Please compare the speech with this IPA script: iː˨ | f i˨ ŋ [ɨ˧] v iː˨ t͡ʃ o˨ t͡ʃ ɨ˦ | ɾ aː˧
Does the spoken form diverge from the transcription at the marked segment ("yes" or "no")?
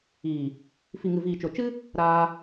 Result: yes